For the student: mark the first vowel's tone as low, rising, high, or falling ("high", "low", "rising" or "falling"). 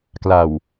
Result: low